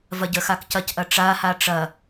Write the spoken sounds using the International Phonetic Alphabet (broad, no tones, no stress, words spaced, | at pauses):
vɐɟəxak cɐcʔɐ ʈ͡ʂaha ʈ͡ʂɐ